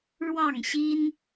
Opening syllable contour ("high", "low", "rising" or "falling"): falling